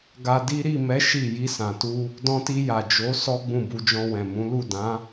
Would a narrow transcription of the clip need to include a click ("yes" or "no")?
no